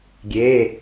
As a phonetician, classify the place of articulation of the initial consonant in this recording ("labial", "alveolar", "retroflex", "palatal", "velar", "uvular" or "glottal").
velar